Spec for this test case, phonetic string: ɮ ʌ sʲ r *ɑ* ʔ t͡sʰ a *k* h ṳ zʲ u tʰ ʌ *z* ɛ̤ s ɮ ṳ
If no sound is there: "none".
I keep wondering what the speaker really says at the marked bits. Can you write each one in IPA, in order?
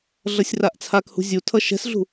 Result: a, k, ʃ

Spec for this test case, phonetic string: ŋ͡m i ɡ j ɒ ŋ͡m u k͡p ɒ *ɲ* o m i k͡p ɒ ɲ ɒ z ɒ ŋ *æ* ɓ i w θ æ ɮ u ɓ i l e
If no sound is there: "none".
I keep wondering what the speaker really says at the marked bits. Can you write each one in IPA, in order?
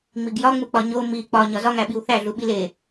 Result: ɲ, æ

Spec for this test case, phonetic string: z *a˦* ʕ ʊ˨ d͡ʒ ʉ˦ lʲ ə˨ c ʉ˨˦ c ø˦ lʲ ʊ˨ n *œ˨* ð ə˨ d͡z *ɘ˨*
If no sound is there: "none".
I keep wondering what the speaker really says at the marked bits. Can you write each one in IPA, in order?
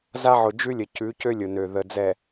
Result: a˦, ø˨, ɛ˨

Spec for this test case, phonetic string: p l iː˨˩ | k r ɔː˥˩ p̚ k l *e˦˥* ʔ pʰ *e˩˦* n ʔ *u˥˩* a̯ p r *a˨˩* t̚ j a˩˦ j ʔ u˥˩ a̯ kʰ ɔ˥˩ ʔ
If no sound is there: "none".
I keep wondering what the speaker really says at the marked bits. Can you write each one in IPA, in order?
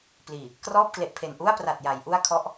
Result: e˨˩, e˨˩, u˥˩, a˨˩

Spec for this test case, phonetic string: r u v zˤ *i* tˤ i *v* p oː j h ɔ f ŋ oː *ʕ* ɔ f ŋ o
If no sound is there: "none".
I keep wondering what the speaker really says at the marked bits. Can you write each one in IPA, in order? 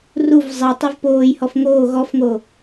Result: i, v, ɣ

